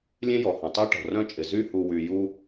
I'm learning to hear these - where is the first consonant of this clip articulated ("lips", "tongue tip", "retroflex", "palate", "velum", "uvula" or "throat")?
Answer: tongue tip